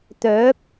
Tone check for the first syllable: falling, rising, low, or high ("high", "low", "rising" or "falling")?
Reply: rising